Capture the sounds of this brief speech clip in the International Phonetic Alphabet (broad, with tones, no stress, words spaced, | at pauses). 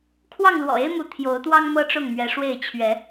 kʰwɑ˥˨ŋlwɔ̰˨˩e˦ɪ̯mu˨˦ t̪ʰjo˨˦ʊ̯t̪wɑ˦ŋ mɤ˦ʈ͡ʂʊ˥˨ŋmɥɛ˨˦ʂwe˥˨ɪ̯ t͡ɕʰɥɛ˨˦